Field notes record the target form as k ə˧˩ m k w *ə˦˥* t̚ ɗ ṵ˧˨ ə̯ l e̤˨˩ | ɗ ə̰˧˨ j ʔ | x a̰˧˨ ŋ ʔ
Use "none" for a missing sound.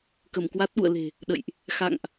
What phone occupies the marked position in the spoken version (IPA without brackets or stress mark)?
a˦˥